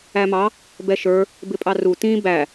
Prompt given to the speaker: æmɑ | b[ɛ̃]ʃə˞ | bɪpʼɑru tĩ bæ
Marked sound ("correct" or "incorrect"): incorrect